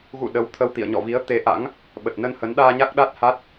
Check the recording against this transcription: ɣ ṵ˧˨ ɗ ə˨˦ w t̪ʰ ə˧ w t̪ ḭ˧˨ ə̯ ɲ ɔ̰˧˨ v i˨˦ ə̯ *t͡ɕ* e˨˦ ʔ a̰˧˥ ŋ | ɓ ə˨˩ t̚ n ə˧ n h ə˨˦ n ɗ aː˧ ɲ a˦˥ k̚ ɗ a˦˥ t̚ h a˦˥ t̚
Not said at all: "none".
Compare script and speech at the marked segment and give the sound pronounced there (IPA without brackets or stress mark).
t̪